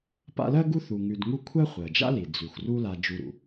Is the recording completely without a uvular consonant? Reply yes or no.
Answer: no